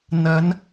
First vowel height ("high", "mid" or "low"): low